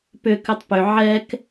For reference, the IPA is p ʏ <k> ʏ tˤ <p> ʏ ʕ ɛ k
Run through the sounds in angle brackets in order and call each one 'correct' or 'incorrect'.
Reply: correct, correct

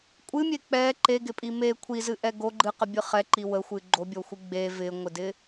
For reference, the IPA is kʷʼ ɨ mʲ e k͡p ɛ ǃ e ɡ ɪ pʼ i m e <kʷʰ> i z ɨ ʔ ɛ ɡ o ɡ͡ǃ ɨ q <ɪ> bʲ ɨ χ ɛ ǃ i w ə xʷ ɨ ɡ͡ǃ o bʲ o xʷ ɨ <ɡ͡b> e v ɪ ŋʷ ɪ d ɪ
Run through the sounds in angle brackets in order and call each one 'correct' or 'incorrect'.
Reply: correct, incorrect: ə, correct

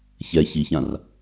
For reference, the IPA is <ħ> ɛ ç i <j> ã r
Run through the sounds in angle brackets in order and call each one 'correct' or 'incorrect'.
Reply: incorrect: ç, incorrect: ç

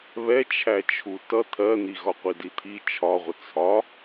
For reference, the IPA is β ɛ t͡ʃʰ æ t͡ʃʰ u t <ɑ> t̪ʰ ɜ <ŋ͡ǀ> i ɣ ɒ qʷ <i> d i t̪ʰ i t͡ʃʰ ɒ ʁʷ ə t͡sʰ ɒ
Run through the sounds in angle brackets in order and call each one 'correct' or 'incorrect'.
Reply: incorrect: ʌ, incorrect: n̪, correct

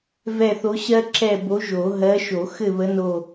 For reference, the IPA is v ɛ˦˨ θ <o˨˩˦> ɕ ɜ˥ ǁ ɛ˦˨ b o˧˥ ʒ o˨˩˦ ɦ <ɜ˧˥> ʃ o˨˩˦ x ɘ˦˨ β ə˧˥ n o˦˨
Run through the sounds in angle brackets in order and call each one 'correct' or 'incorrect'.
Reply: incorrect: o˧˥, correct

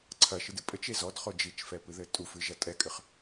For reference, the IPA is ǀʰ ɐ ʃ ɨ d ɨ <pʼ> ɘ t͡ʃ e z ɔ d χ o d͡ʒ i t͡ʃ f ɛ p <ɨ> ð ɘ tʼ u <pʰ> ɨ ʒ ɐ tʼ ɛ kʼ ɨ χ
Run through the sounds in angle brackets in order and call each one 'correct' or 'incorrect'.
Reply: correct, correct, incorrect: f

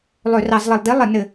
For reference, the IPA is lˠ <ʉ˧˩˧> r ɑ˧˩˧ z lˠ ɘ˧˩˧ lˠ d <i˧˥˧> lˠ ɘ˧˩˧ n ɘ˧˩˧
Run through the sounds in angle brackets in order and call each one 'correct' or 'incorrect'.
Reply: incorrect: ø˧˩˧, correct

